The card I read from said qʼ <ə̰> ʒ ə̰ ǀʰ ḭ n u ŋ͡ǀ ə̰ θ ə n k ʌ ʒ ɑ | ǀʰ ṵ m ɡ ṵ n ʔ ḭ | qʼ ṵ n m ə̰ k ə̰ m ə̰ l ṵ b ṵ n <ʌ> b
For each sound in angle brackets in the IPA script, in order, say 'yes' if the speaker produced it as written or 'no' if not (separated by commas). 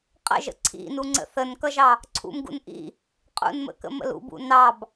yes, no